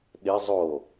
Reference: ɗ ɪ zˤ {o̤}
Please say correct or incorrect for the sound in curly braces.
incorrect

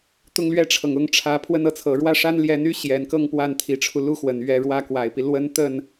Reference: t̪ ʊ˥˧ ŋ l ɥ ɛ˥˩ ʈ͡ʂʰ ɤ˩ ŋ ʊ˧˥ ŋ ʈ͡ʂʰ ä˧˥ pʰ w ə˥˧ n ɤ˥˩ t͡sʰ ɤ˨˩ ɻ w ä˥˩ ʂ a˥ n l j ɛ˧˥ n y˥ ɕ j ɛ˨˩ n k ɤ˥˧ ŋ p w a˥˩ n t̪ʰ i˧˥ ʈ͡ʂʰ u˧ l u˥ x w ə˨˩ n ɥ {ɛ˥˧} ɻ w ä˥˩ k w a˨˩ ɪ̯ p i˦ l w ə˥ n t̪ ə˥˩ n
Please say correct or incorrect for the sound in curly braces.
correct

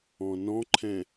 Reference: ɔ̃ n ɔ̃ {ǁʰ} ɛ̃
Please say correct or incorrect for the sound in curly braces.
incorrect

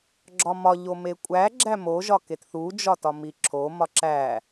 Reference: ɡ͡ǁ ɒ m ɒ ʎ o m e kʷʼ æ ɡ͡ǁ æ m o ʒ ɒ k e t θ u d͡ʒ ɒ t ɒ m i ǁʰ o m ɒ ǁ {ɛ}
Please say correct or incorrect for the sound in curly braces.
incorrect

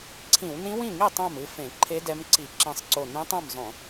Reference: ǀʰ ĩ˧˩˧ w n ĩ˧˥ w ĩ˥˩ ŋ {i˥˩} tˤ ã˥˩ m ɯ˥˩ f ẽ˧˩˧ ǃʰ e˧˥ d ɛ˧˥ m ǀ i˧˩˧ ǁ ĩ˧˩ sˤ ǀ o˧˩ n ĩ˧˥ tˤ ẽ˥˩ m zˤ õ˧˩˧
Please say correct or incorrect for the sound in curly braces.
correct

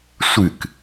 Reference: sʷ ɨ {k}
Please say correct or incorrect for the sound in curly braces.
correct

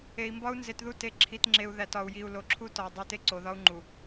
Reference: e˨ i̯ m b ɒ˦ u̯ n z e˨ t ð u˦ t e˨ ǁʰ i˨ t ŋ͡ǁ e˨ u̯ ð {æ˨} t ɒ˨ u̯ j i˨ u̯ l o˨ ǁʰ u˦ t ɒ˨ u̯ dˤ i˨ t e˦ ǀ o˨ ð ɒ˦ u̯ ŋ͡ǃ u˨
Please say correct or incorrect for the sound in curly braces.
correct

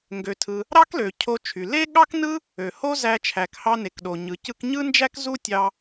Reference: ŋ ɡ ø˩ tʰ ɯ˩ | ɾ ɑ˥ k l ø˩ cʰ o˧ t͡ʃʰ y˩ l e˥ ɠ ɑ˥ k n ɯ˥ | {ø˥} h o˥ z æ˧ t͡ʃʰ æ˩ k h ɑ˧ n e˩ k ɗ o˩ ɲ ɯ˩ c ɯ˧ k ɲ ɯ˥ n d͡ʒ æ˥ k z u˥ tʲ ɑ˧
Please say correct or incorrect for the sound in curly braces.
incorrect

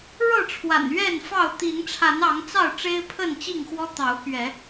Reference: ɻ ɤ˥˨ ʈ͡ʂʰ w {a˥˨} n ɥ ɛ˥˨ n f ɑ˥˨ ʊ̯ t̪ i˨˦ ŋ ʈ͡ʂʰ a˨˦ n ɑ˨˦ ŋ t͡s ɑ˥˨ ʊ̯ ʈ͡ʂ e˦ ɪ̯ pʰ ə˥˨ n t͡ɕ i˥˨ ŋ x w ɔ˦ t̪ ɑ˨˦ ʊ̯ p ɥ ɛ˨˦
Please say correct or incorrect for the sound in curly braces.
incorrect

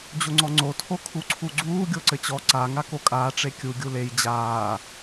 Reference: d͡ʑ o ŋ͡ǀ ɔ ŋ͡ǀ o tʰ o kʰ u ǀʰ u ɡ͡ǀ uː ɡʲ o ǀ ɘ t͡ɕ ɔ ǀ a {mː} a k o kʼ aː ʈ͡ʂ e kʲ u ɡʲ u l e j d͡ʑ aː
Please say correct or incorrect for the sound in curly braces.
incorrect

